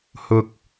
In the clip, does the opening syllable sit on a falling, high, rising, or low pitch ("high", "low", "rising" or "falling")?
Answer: low